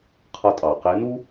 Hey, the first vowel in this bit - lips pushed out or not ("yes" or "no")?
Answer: no